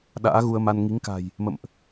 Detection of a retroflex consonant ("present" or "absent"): absent